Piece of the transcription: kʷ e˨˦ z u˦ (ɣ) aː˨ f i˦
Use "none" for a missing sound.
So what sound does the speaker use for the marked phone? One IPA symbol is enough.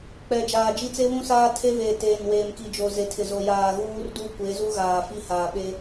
ɣ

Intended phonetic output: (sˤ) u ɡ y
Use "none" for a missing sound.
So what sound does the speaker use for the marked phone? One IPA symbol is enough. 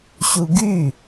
ɕ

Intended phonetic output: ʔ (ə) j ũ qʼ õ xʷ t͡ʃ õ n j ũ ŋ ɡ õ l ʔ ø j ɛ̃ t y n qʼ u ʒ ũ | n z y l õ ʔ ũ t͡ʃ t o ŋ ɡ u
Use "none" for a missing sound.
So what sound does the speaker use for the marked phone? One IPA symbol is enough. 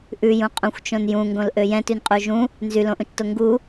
ʉ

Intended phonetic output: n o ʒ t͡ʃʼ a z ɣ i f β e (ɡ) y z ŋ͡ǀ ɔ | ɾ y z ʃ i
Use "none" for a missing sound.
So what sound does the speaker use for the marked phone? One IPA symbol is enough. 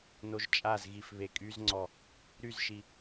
kʼ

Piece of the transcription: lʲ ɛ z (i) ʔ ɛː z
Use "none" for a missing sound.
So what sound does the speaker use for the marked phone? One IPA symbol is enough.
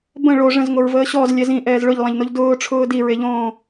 ĩ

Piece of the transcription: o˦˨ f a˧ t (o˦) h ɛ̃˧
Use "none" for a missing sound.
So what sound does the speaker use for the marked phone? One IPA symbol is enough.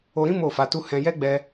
u˦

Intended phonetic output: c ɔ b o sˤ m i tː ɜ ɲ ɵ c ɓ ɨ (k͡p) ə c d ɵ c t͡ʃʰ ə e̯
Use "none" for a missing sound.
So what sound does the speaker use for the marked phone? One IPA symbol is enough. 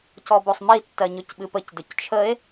p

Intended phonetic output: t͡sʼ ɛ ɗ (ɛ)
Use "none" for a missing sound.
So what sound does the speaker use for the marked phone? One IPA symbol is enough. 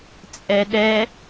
ɛ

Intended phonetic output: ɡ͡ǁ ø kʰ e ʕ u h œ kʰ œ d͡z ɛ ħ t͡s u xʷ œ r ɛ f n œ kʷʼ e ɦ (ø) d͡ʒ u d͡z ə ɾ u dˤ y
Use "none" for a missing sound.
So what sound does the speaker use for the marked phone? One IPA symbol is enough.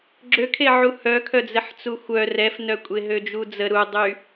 ø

